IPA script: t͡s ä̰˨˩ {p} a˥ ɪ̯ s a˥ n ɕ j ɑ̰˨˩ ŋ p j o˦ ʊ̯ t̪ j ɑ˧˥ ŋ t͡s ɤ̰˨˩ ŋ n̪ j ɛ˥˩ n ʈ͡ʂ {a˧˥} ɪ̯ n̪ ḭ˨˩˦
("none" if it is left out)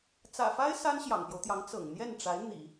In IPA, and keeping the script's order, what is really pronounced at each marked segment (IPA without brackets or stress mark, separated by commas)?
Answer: f, a˧˥